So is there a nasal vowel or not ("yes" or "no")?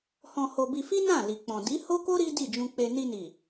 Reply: yes